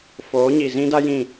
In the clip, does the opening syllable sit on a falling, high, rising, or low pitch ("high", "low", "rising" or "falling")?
rising